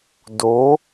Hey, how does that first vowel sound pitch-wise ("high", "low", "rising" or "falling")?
rising